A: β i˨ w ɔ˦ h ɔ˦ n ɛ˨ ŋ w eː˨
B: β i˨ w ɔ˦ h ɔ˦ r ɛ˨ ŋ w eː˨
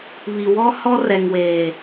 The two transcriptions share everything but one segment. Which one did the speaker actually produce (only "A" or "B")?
B